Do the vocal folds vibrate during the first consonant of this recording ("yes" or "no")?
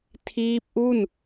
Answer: no